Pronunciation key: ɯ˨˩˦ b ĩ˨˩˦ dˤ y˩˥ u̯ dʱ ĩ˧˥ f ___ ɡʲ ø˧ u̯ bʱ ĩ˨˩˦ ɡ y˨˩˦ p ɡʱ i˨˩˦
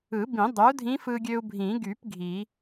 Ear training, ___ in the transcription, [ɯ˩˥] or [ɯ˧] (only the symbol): ɯ˧